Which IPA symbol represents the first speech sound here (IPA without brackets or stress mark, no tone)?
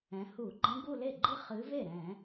ɛ̃